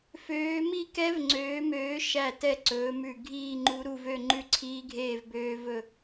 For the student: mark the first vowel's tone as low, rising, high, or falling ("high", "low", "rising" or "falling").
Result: rising